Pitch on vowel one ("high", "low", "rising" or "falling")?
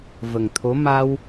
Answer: low